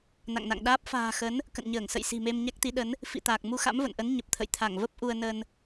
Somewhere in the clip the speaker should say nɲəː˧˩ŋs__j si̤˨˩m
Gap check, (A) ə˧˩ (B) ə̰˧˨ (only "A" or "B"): B